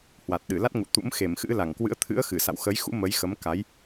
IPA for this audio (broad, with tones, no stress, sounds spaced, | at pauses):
h w a˨˩ t̚ ɗ ɨ˧˩ l a˦˥ t̚ ŋ ṵ˧˨ t̪ ṵ˧˥ m x e˧˩ m x ɨ̰˧˥ l a˧˩ ŋ k w ɨ̰˧˥ ə̯ t̪ʰ ɨ̰˧˥ ə̯ x ɨ˧˩ s a̰˧˨ w x ə˨˦ j x ṵ˧˥ m ə˨˦ j x ə˨˦ m k a˨˦ j